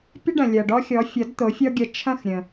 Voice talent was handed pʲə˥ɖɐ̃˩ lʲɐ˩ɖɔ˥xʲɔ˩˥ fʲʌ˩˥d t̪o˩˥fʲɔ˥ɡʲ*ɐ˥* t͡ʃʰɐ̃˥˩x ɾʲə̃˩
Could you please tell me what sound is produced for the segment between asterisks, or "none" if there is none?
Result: ɐ˧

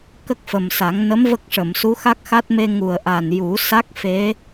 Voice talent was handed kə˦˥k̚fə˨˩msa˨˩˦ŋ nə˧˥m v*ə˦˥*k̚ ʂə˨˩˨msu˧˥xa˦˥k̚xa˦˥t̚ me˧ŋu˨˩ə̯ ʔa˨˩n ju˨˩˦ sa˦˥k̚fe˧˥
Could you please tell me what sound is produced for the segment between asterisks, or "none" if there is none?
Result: ə˦˥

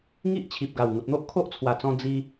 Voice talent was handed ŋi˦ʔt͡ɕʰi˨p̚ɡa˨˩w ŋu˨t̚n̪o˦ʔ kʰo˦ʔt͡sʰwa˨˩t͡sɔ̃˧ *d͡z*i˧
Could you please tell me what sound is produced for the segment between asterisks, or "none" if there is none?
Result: d͡z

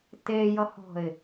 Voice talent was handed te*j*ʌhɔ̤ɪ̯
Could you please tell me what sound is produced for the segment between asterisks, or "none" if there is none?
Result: j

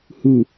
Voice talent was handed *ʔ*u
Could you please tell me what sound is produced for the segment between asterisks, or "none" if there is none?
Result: h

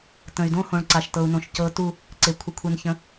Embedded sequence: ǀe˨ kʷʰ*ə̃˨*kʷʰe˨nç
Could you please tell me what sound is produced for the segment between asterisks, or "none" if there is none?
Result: ə˨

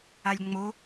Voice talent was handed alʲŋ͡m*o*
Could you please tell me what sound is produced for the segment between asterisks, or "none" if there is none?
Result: o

